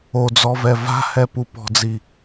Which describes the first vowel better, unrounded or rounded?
rounded